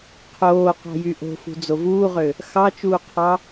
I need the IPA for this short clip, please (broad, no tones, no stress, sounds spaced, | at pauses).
qʰ oː q ɑ̤ j y ʔ o̤ f ṳ d͡z o v uː ʁ ø | x ɑ t͡ʃ uː qʰ ɑ